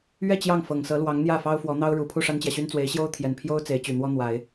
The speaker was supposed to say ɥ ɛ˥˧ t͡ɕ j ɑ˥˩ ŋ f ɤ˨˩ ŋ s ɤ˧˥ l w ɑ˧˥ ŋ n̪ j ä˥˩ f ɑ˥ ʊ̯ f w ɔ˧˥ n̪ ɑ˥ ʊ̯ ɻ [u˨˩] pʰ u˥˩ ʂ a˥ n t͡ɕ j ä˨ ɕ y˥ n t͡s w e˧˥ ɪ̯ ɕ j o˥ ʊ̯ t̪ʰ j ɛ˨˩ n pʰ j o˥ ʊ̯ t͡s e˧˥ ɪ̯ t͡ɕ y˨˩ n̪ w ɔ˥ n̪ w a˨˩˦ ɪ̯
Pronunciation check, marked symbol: correct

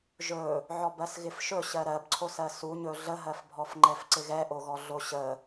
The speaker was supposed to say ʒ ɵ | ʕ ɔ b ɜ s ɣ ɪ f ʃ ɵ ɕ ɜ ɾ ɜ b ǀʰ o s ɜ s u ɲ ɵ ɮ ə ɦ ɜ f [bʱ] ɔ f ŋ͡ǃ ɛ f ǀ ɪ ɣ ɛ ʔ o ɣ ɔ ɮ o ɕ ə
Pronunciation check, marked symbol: correct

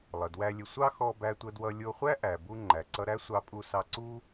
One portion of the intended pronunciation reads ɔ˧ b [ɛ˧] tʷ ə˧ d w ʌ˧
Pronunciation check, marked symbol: incorrect: æ˧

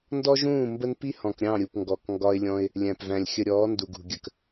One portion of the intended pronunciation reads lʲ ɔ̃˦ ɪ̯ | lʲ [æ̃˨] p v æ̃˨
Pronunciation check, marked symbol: correct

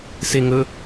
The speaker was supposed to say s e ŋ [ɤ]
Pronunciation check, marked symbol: incorrect: ɵ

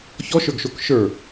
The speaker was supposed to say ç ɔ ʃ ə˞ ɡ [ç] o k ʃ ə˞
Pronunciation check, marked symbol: incorrect: ʃ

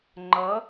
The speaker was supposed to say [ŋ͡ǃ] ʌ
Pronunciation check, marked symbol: correct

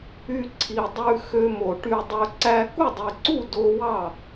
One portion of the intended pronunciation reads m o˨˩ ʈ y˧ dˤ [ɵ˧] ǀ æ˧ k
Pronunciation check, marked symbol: correct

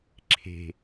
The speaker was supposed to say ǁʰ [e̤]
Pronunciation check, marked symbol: correct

